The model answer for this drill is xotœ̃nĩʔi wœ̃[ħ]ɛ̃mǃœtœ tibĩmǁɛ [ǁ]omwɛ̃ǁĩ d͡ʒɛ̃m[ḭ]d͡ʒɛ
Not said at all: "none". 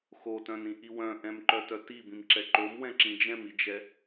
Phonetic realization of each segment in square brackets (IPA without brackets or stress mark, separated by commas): ʔ, ǃ, i